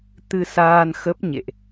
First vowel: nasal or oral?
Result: oral